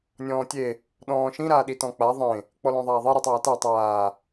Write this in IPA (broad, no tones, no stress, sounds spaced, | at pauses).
nʲ ɔ̃ː tʲ e | ɗ ɔ̃ː ʃ ĩ ɾ aː ɗ i t ɔ̃ k͡p a ðˤ ẽ | k͡p ɔ l ɔ̃ ðˤ aː ðˤ i ɾ i tˤ aː t a tˤ aː